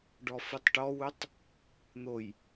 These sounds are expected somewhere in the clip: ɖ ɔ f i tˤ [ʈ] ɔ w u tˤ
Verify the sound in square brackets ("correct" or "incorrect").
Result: correct